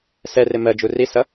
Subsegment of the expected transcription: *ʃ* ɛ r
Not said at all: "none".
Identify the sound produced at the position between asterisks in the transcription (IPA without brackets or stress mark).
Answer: s